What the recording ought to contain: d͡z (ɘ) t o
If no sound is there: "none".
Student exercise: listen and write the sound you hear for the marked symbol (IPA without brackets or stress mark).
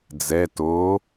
ɛ